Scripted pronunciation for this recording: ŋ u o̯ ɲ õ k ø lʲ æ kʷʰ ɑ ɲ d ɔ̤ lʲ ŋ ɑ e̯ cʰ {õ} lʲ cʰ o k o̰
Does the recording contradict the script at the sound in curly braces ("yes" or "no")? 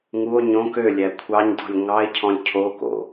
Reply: yes